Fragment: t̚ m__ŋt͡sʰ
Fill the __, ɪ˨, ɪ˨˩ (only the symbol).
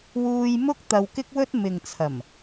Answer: ɪ˨